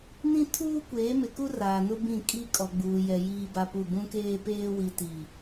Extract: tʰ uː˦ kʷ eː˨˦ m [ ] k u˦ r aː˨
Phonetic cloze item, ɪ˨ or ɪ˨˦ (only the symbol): ɪ˨